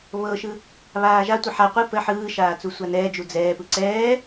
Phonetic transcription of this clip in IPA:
β ɤ ʃ ɯ | β aː ʒ a tʷ ɯ ħ a qʷ ɯ p ə ħ ɯː ʃ aː t͡s u sʷ a n ɛː d͡ʒ u d͡z ɛː p ɯ ǀ ɛː

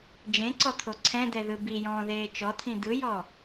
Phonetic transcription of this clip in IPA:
d͡ʒ ẽ ǀ ɔ t̪ʰ o ǀʰ ɛ̃ d̪ ɛ ð ɯ b i j ɔ̃ː ð eː t͡ʃ ɔ t̪ʰ ĩ d̪ ɯ j ɔ

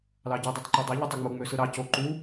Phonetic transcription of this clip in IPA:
l ɑ ɟ y dˤ e tˤ ǃ o dˤ ɑ ʎ ɯ tˤ ɯ ŋ͡m u ŋ͡m ø s ɯ ɾ ɑ c o ǃ u

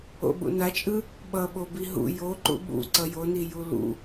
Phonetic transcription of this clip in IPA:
o̰ ɓ ṵ n a t͡ʃʼ ɯ | ɓ ʌ ɓ o b i ɦ ṵ j o ǃ ṵ ɓ ṵ ǀ ʌ j o n i j u l ṵ

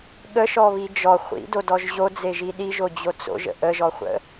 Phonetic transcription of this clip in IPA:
ɠ ə ʃ ɔ β i d͡ʒ ɔ χʷ ḭ d o d ɔ ʒ ʑ o d͡z e ʒ i ɗ i ʒ o d͡ʑ o t͡s o̰ ʒ ə̰ ʔ ə ʒ ɔ χʷ ə̰

